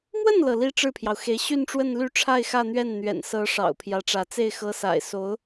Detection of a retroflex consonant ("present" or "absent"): present